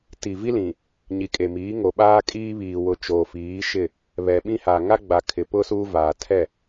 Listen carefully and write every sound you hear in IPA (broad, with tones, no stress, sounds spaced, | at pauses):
t i˨ v i˦ l ĩ˨ | ɲ i˨ kʼ e˨ m iː˨˦ ŋ o˨ ɓ aː˦ kʼ iː˦ β iː˨ w ʊ˨ t͡ʃ oː˨ f iː˨˦ ʃ ɪ˦˨ | β ɛ˨ ɓ ĩ˦ h a˨ ŋ a˦ ɡ͡b a˨ kʰ ɪ˨ p ʊ˦ s uː˦ v aː˨ tʰ ɛ˦˨